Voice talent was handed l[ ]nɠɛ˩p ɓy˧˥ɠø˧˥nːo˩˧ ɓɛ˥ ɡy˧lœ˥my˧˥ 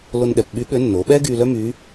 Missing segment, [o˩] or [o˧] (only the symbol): o˧